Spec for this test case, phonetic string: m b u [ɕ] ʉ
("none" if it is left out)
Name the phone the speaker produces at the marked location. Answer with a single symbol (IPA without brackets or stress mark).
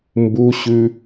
ɕ